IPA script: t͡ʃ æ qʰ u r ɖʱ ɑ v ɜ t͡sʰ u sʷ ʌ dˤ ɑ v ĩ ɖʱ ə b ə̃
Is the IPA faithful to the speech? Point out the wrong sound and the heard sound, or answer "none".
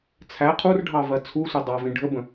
t͡ʃ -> t͡sʰ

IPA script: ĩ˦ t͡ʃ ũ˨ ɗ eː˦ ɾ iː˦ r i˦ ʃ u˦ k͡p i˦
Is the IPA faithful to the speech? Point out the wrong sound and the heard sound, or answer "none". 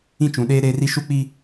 iː˦ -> eː˦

